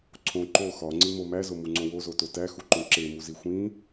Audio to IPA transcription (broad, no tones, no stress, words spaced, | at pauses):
ǀʰõ ǃo xɒŋ͡ǀimo mæzomuŋ͡ǀõ wozoto tæxuǃõ ǁemuzi xʷĩ